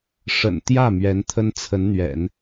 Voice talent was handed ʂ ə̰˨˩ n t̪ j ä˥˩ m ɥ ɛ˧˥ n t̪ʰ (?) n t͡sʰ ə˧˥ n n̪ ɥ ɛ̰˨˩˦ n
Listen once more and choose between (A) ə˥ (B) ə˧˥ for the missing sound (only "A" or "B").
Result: A